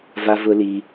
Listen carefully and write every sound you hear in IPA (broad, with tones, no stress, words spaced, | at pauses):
va˦vʊ˦li˦